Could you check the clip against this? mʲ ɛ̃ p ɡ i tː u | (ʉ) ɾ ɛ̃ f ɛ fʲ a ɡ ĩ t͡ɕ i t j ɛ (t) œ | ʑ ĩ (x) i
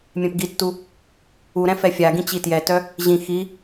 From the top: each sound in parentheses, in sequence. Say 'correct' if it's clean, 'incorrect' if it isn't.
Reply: incorrect, correct, correct

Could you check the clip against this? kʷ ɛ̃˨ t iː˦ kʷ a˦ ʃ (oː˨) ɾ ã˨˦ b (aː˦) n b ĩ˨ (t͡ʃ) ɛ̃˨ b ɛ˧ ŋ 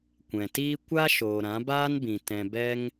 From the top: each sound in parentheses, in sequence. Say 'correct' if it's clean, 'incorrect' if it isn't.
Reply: correct, correct, incorrect

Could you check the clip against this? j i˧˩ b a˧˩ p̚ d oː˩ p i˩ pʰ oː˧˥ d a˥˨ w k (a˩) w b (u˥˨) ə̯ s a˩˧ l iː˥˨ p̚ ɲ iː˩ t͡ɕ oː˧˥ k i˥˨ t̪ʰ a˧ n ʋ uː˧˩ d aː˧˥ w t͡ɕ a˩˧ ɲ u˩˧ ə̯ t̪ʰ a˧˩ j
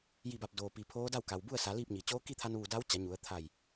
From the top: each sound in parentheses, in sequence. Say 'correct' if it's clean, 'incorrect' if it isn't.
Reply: correct, correct

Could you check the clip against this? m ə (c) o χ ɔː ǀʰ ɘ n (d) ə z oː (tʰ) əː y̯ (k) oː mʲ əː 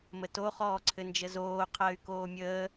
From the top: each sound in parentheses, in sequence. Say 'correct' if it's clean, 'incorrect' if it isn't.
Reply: incorrect, incorrect, incorrect, correct

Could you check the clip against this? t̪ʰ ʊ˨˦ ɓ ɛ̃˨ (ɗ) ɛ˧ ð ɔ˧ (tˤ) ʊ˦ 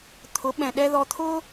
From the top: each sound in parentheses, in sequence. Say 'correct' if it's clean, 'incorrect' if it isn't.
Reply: correct, incorrect

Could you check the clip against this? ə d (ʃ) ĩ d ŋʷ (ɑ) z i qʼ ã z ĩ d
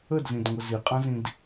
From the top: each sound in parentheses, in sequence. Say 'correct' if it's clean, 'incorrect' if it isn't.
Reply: incorrect, incorrect

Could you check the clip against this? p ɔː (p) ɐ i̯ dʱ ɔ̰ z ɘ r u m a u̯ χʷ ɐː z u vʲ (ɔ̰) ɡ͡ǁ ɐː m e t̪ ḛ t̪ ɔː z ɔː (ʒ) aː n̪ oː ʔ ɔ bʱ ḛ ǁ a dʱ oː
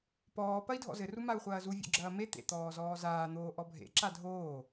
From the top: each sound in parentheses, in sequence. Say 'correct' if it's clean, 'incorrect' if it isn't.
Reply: correct, incorrect, incorrect

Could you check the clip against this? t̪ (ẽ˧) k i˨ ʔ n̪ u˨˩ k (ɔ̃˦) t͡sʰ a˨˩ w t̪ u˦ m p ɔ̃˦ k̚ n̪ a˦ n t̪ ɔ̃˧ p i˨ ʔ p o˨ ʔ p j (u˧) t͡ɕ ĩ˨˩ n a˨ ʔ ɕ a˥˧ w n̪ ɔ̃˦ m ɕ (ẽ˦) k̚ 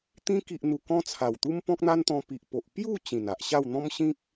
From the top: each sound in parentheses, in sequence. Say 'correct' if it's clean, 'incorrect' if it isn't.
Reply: incorrect, correct, incorrect, incorrect

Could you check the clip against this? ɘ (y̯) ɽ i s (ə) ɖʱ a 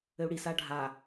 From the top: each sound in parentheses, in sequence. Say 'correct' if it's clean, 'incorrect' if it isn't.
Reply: incorrect, incorrect

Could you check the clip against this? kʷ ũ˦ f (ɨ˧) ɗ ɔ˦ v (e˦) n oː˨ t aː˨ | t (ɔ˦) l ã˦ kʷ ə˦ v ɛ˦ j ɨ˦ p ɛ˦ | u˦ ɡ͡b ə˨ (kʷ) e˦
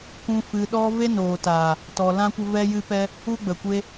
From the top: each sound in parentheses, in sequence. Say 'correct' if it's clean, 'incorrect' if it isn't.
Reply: correct, correct, incorrect, correct

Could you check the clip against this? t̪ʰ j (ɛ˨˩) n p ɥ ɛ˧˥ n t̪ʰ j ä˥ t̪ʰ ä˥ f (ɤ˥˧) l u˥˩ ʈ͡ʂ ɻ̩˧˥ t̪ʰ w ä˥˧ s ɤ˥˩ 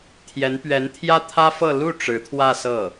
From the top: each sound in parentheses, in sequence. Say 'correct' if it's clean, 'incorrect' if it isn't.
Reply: incorrect, correct

